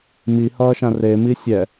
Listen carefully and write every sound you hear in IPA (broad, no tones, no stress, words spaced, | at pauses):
mihʌːʃã remi sʲɛ